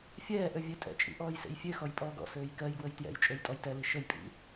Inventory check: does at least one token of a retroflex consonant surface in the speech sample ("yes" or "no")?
no